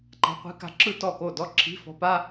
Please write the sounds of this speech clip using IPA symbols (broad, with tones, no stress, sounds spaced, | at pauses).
ǃ a̤˧˥ qʷ i̤˧˥ k a̤˧˥ ǁ ɯ˥˧ t ɔ˥˩ k o˥˩ d ɔ˥˧ ǁʰ i̤˧˥˧ f ɔ̤˧˥ p a˧˥˧